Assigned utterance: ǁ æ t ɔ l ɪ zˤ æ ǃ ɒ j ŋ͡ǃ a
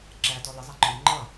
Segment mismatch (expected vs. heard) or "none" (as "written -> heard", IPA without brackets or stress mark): a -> ʌ